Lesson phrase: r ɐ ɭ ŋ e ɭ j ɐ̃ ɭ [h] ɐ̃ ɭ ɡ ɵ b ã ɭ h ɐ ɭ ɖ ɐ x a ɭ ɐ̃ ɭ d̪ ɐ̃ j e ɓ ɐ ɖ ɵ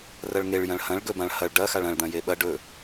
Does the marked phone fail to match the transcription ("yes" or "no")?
no